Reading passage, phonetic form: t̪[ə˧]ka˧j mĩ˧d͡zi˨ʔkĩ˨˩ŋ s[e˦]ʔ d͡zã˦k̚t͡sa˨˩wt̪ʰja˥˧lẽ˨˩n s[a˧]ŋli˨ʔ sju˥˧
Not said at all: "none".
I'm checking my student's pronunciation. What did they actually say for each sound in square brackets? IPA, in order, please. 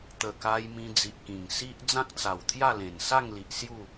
ə˨˩, i˦, a˥˧

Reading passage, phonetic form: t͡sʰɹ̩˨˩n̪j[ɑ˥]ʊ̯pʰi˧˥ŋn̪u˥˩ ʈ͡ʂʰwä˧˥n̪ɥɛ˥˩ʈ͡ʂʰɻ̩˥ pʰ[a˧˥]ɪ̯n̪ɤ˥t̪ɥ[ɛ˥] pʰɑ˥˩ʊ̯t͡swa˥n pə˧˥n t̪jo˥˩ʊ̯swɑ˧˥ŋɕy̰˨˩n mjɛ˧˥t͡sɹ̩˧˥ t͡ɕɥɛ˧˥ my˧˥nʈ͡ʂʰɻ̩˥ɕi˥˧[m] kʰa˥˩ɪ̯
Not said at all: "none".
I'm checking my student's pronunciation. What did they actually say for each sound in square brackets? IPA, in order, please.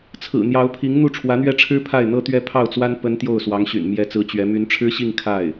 ɑ˧˥, a˥˩, ɛ˥, ŋ

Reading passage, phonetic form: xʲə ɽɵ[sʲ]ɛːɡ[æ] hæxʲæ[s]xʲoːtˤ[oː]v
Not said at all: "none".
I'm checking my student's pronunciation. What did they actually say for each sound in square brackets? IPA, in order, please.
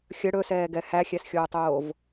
s, ɛ, s, oː

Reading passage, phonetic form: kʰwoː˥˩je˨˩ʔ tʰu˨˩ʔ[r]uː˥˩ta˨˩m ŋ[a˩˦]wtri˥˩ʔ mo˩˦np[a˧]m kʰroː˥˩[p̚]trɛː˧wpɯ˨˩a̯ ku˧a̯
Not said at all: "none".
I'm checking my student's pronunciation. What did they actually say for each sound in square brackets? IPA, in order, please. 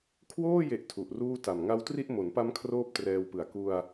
r, a˦˥, a˦˥, p̚

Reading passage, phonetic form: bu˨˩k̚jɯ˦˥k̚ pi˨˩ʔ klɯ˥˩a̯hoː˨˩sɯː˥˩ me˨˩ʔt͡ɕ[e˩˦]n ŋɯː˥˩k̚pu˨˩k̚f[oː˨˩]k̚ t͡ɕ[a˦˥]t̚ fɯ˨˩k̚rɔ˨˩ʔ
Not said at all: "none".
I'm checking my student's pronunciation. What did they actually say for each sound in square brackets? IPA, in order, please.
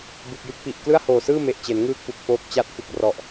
e˩˦, oː˦˥, a˦˥

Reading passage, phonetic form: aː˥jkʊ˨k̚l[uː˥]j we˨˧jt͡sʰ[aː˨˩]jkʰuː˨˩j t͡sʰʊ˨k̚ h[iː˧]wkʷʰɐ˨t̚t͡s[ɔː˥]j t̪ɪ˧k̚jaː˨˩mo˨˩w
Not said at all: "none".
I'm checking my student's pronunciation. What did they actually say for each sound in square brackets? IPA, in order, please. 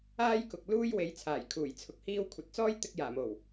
uː˥, aː˨˩, iː˧, ɔː˥

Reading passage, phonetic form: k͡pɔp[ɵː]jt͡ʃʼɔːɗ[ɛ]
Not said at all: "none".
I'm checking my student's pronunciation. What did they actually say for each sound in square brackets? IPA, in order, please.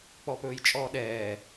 ɵː, ɛː

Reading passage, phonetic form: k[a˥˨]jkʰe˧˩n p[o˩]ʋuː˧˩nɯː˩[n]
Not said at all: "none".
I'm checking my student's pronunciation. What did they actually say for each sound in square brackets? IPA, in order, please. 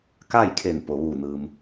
a˥˨, o˩, m

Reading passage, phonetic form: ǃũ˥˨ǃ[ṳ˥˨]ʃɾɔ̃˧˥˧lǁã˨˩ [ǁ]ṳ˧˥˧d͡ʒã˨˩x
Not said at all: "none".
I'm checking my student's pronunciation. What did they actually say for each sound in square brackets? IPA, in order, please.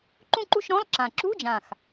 ṳ˥˨, ǁ

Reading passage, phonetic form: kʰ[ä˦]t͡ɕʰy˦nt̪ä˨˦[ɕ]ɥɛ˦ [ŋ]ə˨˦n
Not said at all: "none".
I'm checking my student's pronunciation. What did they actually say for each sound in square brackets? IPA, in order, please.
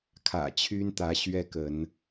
ä̰˨˩, ɕ, k

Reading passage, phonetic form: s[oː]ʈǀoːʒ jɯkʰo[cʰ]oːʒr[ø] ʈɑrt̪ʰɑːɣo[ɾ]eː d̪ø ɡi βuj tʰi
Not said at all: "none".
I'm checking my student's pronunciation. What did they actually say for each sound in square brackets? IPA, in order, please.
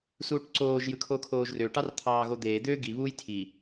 uː, kʰ, ø, d̪

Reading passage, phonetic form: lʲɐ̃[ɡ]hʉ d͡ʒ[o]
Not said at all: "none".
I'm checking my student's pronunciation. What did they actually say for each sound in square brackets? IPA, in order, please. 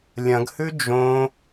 ɡ, õ

